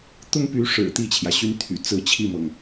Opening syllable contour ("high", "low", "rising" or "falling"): high